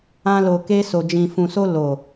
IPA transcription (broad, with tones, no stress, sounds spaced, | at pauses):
ã˧ l o˨ k e˧ s o˨ d͡ʒ ĩ˨ f ũ˨ s o˧ l o˨